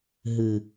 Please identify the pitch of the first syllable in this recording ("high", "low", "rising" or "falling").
low